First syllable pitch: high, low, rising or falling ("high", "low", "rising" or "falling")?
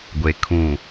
low